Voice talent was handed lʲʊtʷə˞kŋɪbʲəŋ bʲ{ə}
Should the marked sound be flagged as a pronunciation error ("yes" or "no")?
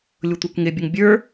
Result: yes